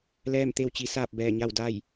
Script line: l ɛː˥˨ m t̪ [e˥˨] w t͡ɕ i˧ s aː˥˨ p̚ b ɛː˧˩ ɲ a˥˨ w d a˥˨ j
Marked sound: correct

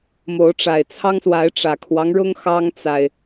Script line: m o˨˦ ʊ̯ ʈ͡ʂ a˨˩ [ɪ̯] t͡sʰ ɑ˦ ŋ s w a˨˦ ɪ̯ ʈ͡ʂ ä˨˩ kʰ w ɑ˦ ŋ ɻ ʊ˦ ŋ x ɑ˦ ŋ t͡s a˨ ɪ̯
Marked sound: correct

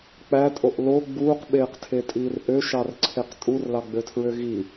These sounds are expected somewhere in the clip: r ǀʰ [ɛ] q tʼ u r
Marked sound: incorrect: e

